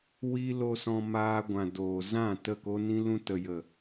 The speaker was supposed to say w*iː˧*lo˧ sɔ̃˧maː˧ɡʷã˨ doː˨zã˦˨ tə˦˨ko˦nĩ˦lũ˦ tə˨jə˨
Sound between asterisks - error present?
no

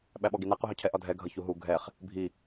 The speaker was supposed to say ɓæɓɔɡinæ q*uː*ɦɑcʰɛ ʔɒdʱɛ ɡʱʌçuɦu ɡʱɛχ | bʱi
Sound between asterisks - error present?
yes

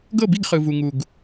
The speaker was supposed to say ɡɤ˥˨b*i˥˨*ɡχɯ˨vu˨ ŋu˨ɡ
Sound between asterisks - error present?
no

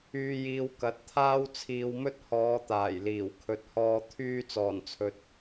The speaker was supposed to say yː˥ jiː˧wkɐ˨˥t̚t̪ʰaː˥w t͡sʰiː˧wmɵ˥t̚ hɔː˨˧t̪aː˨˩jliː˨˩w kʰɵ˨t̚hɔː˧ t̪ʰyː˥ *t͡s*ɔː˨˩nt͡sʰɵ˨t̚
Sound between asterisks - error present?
no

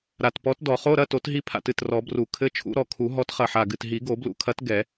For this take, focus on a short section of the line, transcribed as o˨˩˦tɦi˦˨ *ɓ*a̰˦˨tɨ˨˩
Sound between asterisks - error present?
yes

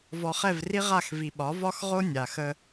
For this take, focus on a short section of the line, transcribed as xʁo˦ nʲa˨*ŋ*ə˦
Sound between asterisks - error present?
yes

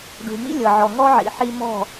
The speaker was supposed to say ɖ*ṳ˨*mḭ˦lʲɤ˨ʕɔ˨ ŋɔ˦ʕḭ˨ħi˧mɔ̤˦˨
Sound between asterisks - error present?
no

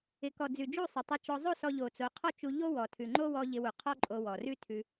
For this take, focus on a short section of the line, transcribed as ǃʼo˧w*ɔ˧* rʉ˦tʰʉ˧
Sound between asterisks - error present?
yes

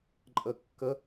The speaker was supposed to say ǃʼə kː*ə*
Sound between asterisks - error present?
no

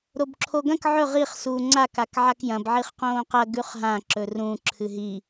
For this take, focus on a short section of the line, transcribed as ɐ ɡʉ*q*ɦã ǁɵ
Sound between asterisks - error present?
yes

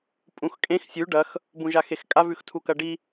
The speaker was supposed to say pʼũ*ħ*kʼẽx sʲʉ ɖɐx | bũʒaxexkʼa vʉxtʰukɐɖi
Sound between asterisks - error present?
yes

